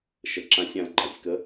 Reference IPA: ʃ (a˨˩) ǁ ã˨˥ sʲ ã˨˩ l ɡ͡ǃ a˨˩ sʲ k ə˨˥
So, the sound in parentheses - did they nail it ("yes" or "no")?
no